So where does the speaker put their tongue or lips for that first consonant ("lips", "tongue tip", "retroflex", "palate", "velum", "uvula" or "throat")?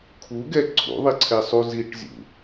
velum